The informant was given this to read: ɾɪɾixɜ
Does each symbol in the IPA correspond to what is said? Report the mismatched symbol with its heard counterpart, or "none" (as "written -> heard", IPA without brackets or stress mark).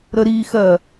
ɪ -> ə